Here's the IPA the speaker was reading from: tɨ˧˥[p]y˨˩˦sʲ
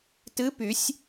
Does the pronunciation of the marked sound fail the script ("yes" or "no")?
no